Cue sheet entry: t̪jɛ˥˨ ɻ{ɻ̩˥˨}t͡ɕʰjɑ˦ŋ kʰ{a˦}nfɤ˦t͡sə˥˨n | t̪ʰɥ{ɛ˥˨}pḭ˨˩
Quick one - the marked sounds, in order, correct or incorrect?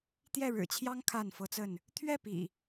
incorrect: ɻ̩˨˩, incorrect: a˥˨, correct

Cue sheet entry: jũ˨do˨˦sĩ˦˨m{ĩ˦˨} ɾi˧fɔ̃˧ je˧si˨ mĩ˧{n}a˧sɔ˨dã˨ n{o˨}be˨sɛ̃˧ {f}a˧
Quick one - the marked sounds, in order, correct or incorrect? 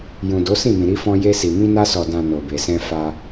incorrect: ĩ˨, correct, correct, correct

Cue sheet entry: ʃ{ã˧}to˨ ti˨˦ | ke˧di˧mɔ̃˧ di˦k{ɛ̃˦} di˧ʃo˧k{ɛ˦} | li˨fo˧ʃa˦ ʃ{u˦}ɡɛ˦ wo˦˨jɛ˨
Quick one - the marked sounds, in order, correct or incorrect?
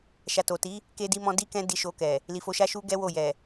incorrect: a˧, correct, incorrect: ɛ˨, correct

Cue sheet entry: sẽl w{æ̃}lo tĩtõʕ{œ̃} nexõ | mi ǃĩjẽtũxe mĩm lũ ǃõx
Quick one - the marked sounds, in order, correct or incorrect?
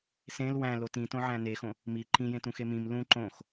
correct, incorrect: æ̃

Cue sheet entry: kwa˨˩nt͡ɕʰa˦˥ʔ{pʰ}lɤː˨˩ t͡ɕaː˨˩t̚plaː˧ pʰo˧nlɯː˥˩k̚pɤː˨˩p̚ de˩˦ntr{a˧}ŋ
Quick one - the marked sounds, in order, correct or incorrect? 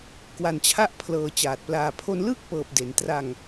correct, correct

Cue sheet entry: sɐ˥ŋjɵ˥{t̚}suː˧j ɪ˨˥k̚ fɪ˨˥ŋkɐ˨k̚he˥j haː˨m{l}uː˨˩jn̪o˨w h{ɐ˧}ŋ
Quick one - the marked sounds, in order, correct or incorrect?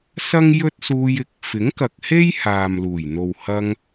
correct, correct, correct

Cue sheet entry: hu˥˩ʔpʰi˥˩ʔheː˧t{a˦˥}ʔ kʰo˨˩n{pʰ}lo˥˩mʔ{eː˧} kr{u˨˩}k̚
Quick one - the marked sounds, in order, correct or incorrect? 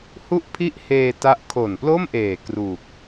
correct, incorrect: p, incorrect: eː˨˩, incorrect: uː˨˩

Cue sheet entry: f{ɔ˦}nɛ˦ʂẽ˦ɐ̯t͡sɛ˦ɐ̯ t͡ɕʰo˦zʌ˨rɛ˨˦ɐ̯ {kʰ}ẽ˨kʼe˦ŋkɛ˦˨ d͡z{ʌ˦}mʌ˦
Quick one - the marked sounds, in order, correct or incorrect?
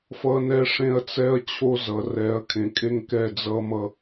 incorrect: ʌ˦, correct, correct

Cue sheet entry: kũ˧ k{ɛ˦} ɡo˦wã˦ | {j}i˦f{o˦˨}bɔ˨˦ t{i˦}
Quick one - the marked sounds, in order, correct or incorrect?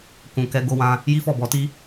incorrect: ɛ˧, correct, incorrect: ɔ˦˨, correct

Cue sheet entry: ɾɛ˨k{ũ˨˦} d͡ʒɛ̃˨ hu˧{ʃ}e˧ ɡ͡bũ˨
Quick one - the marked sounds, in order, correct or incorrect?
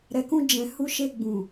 incorrect: ũ˧, correct

